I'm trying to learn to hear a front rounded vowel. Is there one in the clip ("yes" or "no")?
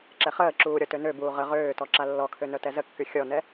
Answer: yes